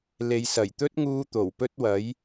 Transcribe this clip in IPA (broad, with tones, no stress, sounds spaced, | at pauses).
l e˨ j s ɐ˨˩ j t̪ ɵ˥ t̚ ŋ uː˧ t̪ o˨˩ w p ɵ˥ t̚ w ɐ˨˥ j